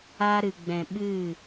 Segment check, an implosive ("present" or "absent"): present